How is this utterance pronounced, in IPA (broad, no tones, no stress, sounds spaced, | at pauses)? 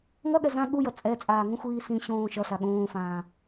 ŋ ʌ ɠ ɛ z ã ɠ u j ʌ t͡sʼ ɛ t͡sʼ aː ŋ ũ xʷ iː s ĩ ɕ õː ʃ ʌ ɬ a ɠ õː f ãː